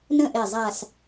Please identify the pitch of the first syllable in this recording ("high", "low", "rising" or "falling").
falling